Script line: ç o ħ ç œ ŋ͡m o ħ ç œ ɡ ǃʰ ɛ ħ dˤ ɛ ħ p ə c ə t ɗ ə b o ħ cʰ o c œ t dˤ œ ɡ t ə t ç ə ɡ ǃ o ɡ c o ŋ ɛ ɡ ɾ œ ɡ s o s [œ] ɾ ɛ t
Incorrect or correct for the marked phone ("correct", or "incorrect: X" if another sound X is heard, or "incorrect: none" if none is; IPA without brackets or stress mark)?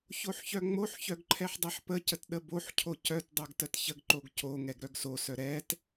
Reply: correct